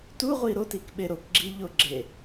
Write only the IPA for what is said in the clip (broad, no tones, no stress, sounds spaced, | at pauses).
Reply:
t u ʁʷ i ɾ o t i k ɓ e ɾ o k ɡ͡ǁ i ʎ o ɡ͡ǁ e